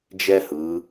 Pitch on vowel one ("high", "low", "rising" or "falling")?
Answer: high